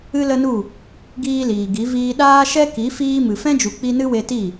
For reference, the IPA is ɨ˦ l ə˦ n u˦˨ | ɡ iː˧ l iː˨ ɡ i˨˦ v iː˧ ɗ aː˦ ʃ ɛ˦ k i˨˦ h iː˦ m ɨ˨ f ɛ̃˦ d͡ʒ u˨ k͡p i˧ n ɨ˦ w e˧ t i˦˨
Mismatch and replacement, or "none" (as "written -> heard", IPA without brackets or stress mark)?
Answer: h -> f